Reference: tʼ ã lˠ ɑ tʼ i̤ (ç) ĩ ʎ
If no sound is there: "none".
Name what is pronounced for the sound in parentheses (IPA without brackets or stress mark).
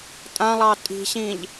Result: ɕ